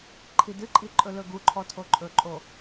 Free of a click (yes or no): no